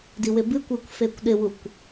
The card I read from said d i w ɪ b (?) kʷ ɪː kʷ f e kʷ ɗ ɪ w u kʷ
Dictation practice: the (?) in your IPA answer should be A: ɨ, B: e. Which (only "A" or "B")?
A